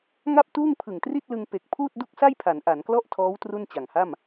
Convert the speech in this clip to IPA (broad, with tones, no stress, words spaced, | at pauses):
ŋa˥˩p̚tuː˥˩ŋ pʰɯ˨˩ŋtri˥˩t̚lɯ˧ŋ pe˨˩k̚ pʰuː˥˩t̚du˥˩k̚sa˥˩jpʰa˩˦n ʔa˩˦nklɔ˥˩ʔtʰɔː˦˥w tru˥˩nt͡ɕa˨˩ŋha˥˩m